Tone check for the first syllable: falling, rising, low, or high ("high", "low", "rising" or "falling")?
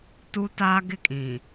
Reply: high